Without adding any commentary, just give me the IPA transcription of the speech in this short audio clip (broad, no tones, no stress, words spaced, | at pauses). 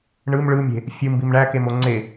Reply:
ɳɯm ɭɯmʲe̤ | fʲɯmbim ɳækemo ŋ͡ǀe